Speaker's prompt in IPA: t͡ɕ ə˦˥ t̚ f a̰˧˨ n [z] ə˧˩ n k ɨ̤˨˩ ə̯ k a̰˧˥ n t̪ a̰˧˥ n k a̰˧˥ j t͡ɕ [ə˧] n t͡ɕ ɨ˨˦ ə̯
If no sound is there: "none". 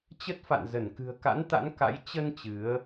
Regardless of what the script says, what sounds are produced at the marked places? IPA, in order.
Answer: z, ə˧

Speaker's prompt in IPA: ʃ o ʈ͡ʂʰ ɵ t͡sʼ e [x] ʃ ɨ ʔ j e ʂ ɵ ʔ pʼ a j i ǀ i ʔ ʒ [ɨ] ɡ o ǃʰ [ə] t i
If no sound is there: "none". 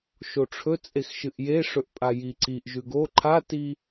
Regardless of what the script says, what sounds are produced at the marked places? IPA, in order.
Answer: x, ʉ, a

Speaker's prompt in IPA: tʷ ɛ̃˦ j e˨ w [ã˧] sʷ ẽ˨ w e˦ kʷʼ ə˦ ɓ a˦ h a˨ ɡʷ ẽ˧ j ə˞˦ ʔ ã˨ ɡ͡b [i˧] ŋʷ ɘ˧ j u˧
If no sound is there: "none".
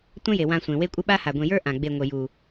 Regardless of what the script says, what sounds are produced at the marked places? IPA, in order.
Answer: ã˧, e˧

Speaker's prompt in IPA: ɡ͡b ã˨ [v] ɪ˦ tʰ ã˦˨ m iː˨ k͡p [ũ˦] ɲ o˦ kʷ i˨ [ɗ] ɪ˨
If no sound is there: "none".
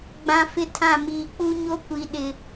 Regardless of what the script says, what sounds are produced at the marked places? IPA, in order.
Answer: f, u˦, ɗ

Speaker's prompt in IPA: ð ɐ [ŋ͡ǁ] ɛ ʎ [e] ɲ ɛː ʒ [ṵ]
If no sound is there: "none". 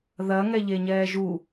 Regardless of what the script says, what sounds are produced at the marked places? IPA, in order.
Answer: ŋ, e, u

